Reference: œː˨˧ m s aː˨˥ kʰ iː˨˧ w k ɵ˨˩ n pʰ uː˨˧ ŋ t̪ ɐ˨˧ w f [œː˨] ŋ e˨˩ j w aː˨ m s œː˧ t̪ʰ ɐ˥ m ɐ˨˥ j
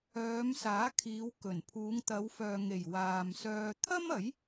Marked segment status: correct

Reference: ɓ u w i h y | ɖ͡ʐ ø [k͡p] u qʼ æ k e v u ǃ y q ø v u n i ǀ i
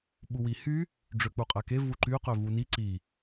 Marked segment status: correct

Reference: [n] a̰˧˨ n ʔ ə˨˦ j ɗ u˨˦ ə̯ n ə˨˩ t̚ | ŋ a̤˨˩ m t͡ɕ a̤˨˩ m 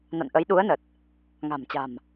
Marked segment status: correct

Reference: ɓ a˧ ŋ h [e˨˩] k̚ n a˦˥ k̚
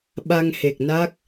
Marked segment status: correct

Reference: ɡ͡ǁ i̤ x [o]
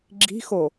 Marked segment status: correct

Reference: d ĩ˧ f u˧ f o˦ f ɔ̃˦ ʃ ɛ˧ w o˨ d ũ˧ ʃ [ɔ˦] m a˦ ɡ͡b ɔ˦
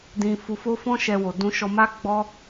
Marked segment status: incorrect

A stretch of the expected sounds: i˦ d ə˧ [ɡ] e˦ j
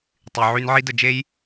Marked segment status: incorrect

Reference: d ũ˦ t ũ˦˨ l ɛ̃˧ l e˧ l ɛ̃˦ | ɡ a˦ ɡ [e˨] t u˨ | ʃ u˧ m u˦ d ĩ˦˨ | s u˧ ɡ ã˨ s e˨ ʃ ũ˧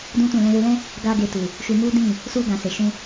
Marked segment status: incorrect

